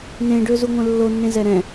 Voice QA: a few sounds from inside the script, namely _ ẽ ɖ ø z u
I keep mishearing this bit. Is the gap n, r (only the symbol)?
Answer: n